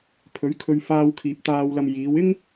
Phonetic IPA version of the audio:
pʰ ɵ˨˥ ɥ kʰ ɵ˧ ɥ f aː˧ w kʰ iː˨ p̚ t̪ aː˨ w l ɐ˨ m j iː˨˧ w ɪ˥ ŋ

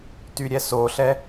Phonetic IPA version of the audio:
t y ɾʲ ɛ s o ɬ ɛ

